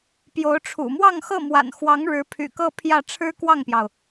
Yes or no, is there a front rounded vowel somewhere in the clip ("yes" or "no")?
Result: yes